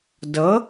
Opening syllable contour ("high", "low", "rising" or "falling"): rising